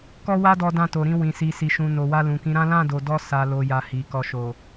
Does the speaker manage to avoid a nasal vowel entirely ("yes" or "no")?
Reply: no